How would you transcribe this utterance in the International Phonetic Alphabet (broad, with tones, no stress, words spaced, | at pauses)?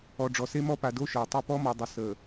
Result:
ɔ˨ ɖ͡ʐɔ˨se˦mɔ˦ pa˨do˦ ʃəː˨tˤy˦ pɔ˦mɔ˨dˤə˨səː˨